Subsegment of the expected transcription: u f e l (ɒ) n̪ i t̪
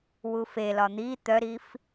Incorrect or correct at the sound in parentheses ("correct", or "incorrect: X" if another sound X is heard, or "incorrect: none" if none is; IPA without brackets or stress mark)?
correct